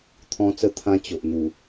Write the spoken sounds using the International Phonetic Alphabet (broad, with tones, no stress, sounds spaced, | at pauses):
t̪ʰ ɔ̃˧ t͡s ə˧ t̪ʰ ã˧ t͡ɕ o˨ ʔ n̪ u˨˩